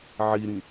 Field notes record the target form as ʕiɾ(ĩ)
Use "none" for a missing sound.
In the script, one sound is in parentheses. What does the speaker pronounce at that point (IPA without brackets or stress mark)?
ĩ